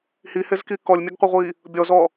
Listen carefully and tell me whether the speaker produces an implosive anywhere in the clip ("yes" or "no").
no